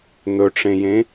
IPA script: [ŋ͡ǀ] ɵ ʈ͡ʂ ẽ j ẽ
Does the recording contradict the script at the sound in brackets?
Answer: yes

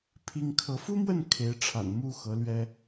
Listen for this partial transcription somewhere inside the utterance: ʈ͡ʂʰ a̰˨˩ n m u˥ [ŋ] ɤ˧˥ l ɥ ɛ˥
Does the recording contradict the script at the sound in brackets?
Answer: yes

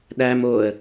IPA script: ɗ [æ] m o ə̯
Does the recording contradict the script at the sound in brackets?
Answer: no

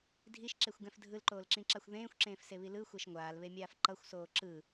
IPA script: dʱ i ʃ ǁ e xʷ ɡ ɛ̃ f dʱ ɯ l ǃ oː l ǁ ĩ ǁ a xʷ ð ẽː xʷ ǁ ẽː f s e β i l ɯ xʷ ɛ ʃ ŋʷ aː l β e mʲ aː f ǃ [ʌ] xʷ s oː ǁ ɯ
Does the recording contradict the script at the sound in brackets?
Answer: no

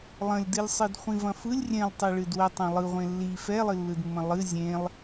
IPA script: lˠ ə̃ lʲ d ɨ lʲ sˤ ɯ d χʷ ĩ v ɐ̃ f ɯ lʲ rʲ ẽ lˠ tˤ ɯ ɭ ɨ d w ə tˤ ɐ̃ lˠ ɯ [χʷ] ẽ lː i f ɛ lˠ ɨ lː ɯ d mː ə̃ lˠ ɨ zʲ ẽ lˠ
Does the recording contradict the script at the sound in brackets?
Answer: yes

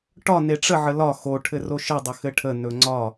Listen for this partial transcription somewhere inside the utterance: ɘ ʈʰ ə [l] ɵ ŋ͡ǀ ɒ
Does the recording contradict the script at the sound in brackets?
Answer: yes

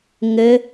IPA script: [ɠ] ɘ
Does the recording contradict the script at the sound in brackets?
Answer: yes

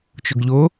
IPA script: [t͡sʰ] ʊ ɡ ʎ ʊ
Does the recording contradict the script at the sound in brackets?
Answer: yes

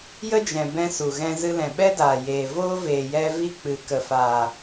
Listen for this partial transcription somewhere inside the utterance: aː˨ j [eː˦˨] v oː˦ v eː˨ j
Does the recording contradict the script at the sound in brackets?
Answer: yes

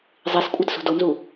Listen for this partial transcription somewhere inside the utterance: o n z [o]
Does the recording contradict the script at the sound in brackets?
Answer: yes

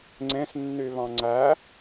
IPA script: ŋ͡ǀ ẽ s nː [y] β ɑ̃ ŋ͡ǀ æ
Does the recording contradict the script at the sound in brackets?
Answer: no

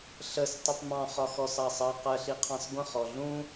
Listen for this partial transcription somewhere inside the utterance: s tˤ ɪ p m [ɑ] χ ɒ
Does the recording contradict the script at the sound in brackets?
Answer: yes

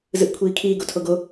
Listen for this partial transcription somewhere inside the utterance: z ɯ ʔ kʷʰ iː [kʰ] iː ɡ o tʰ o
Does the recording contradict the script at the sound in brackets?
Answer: no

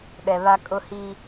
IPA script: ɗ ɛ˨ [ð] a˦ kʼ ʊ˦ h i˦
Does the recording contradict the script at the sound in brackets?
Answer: yes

